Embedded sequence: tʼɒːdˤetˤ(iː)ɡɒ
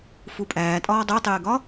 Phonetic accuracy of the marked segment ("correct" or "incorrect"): incorrect